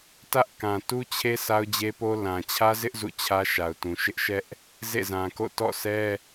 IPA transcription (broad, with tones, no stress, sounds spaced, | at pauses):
t ä˦ ʔ k ã˨ t u˦ t͡ɕʰ e˦ sʰ a˦ ʊ̯ d͡ʑ e˦ p o˦ l ã˨ t͡ɕʰ ä˦ z ɪ˦ ʔ z ṵ˦˨ t͡ɕʰ ä˦ ʃ a˨ ʊ̯ t ũ˨ ʃ ɪ˦ ʔ ʃ ɛ˦ ʔ | z ḛ˦˨ z ã˨ k o̰˦˨ t ɔ̰˦˨ sʰ ɛ˦